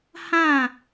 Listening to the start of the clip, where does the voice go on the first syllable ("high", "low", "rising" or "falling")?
falling